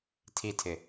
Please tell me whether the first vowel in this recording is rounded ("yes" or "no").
no